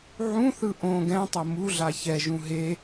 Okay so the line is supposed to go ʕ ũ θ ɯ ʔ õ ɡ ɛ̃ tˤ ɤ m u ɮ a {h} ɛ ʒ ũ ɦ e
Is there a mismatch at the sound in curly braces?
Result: yes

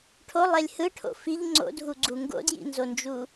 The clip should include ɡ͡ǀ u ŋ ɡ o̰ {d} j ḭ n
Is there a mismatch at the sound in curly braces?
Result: no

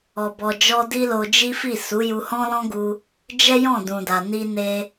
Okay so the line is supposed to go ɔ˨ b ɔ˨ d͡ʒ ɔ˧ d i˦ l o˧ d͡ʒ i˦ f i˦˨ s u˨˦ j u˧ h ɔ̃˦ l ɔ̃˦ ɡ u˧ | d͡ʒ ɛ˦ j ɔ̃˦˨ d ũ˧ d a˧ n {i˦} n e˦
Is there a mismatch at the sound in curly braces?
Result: no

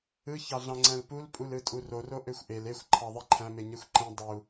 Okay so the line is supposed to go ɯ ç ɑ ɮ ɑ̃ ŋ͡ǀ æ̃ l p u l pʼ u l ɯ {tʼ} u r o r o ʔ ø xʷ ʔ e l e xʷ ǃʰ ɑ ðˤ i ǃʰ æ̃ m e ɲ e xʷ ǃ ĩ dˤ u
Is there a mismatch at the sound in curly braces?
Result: no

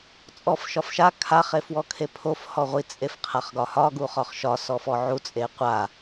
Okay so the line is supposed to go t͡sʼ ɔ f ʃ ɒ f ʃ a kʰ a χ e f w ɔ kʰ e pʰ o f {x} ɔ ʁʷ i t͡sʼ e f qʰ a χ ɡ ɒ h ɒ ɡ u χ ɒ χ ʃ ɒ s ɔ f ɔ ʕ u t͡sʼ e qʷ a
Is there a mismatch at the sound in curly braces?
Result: yes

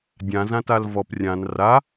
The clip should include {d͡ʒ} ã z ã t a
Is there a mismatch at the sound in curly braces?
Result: yes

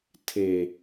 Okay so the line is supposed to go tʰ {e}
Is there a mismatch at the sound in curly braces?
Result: no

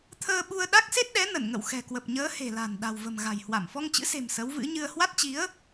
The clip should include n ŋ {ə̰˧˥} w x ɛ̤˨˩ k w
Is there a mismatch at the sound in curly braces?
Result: yes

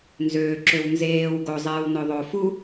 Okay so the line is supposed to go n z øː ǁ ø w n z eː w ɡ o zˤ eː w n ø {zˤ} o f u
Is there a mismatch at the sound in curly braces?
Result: yes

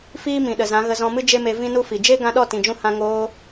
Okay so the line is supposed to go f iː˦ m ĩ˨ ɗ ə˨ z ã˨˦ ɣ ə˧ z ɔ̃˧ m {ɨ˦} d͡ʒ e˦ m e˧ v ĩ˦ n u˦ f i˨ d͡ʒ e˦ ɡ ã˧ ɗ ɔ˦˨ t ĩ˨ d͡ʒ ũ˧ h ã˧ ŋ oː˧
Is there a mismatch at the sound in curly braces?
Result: no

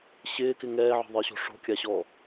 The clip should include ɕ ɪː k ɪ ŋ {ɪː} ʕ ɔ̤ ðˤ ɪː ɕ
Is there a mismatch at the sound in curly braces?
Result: yes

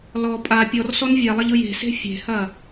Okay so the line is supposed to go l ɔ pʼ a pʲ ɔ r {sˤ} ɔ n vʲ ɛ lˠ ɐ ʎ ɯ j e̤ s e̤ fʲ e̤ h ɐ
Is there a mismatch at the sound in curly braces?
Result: yes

